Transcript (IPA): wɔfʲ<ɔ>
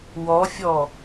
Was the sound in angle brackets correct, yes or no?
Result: yes